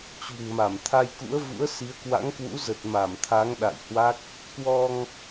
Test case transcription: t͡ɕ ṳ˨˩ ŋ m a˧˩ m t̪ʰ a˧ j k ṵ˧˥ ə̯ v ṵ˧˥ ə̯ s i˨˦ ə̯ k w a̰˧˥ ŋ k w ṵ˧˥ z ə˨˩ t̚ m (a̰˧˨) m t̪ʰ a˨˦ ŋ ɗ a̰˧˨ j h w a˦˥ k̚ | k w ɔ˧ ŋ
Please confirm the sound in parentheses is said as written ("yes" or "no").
no